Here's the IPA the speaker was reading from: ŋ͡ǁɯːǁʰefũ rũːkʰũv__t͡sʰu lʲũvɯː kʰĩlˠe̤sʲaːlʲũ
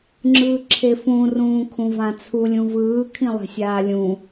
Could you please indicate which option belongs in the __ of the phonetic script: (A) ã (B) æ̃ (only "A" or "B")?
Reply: A